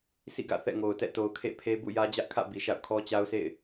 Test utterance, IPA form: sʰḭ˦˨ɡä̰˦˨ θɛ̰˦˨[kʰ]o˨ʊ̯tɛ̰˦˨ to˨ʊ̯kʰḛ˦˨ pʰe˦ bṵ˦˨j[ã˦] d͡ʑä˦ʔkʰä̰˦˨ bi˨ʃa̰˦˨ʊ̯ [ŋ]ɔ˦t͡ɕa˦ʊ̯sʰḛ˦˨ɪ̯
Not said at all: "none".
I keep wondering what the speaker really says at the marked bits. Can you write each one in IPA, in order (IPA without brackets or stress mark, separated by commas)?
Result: ŋ, ä˦, kʰ